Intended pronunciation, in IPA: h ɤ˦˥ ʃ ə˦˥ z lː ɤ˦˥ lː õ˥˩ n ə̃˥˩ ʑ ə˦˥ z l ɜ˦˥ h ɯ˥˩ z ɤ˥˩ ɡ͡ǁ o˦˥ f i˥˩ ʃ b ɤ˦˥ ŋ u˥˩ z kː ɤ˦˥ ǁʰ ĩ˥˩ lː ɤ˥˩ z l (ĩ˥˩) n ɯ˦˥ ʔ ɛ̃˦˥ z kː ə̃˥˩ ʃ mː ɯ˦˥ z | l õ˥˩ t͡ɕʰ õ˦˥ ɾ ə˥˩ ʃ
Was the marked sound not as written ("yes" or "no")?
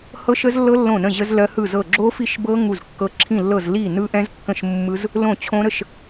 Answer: yes